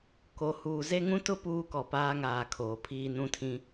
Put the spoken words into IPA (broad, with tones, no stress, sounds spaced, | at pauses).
k o˨ h uː˨ z e˦ ŋ ũ˦ t ʊ˦ p uː˦ k ɔ˨ p aː˦ ŋ aː˨ kʰ oː˨ pʰ iː˦ n ũ˦ tʰ ĩ˦